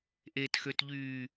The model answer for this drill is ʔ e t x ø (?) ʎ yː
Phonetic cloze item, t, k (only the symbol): t